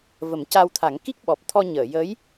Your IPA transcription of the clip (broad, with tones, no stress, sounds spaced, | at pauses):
v ə˨˩˦ m c a˧ w t̪ʰ a˨˩˦ ŋ k i˦˥ k̚ ɓ ɔ˨˩ p̚ t̪ʰ ɔ˧ ɲ əː˨˩˨ j ə˧˥ j